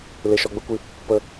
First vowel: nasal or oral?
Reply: oral